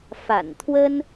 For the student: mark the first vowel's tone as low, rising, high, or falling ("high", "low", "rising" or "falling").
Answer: low